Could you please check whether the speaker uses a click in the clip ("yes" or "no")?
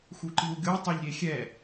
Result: yes